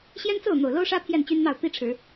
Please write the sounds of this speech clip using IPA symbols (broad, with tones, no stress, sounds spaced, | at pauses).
ɕ j ɛ˦ n t͡s o˥˨ ʊ̯ n̪ o˨˩ ʊ̯ l o˦ ʊ̯ ʂ ä˦ pʰ j ɛ˥˨ n t͡ɕ y˦ n n̪ ɑ˥˨ ʊ̯ t̪ i˦ ʈ͡ʂʰ ɻ̩˨˦